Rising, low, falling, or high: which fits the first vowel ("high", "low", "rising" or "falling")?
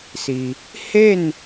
low